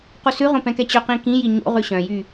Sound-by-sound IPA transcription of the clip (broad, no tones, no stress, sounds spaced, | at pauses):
q u s ʉ ʁ õ p ɛ̃ k ɛ t͡ɕ ɵ q ĩ k ĩ j i ɲ o̰ ʁ ʉ ɕ œ̃ j y